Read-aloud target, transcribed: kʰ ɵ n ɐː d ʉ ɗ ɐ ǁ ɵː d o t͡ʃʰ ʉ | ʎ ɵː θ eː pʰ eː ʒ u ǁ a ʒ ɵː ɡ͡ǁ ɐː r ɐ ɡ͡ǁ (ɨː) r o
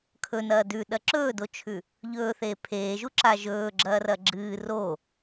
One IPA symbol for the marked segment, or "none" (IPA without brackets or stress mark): ɨː